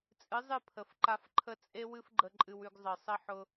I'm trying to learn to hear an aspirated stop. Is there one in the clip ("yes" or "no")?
yes